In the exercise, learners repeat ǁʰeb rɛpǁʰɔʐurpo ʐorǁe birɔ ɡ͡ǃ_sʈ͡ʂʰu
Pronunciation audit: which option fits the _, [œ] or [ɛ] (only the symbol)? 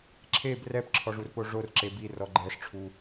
ɛ